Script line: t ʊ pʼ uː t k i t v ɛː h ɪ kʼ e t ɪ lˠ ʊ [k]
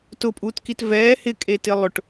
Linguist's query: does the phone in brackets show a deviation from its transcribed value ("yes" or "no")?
yes